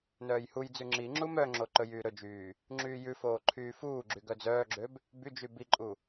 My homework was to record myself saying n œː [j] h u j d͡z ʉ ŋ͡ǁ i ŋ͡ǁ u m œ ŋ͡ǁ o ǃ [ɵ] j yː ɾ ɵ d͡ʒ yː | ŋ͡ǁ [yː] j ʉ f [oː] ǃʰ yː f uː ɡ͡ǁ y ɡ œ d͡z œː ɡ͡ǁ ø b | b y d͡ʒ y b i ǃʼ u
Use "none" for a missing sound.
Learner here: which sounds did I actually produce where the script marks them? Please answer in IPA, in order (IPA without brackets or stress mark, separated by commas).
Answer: j, ɵ, yː, oː